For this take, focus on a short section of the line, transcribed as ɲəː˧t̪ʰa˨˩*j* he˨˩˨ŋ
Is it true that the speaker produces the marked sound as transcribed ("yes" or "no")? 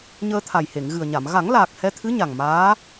yes